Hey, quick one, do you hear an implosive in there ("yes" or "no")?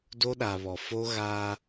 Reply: yes